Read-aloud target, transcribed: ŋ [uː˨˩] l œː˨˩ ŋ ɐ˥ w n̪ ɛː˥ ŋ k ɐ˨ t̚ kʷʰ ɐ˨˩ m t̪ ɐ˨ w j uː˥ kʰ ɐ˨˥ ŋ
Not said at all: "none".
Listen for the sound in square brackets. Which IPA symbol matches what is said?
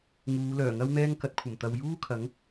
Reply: uː˨˧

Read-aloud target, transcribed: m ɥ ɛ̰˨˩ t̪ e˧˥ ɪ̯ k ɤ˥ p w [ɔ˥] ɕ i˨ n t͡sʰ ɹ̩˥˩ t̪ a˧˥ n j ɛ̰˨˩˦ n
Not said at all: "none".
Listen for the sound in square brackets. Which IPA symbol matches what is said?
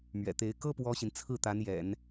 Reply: ɔ˥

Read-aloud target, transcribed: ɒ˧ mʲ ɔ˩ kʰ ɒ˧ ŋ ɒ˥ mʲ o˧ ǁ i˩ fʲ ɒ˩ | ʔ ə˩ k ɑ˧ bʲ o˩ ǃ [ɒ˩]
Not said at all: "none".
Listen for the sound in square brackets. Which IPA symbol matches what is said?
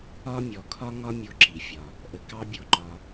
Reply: ɒ˩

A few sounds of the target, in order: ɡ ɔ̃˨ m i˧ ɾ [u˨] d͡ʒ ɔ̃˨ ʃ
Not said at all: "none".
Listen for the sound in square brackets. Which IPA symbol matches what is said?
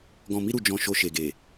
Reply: u˨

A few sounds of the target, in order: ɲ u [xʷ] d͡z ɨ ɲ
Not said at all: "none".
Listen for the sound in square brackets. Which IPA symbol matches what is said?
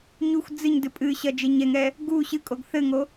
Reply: xʷ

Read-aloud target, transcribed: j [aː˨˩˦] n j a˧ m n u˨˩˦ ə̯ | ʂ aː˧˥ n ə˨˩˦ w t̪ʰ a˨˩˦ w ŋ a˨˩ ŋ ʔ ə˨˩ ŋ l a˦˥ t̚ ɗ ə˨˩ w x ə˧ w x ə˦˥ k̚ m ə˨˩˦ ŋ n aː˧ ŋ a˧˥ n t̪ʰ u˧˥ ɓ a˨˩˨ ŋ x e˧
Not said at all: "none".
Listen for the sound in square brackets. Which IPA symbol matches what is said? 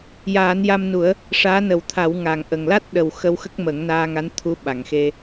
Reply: aː˨˩˦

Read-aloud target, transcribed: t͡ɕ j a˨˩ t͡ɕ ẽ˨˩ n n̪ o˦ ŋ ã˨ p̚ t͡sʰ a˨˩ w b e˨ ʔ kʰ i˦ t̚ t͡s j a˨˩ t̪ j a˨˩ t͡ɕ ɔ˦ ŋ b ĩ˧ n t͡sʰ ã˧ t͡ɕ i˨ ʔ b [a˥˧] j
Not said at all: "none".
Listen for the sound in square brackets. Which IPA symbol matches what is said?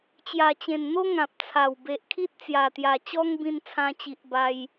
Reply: a˧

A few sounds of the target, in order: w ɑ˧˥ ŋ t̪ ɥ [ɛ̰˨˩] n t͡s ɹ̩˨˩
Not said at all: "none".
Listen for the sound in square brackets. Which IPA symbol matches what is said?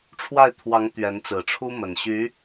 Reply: ɛ˧˥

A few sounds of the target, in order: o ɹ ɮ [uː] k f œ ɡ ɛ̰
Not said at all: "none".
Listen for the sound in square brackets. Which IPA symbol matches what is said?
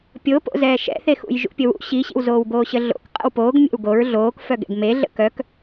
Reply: oː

